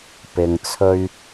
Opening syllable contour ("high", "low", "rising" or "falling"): low